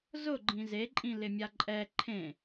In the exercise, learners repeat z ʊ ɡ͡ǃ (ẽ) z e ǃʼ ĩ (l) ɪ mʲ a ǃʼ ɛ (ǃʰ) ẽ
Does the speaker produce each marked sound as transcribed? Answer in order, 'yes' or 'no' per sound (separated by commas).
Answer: no, yes, yes